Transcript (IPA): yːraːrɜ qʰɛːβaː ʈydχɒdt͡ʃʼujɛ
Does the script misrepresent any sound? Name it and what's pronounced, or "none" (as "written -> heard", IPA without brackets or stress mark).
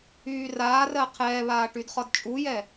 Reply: none